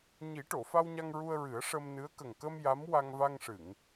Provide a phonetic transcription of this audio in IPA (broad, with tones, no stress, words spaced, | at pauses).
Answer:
ɲi˨˩˦ʈo˨˩˨fa˧wɲa˧ŋ ɹu˧ə̯ɹɨ˨˩˦ə̯ʂə˧mnɨ˧˥ə̯ kə˨˩ŋkə˧m ja˧˥m wa˧ŋva˧ŋʂɨ˨˩˨ŋ